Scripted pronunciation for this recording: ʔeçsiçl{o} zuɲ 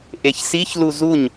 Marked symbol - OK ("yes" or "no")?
no